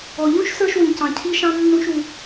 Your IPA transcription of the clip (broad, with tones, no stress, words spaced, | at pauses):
ɔ˩ʎũ˥ʃ sə˞˥ʃwĩ˩cɑ̃˩ cʰi˥ʃɑ̃˥ nːũ˥ʃu˩